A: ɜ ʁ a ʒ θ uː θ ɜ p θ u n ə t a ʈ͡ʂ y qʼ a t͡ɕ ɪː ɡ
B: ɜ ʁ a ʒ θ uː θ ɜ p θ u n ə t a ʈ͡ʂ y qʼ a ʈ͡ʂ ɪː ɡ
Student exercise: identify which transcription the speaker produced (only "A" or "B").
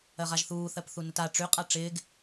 B